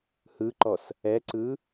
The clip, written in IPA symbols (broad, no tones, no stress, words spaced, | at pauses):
hɯǃɔs | ɛǀɯ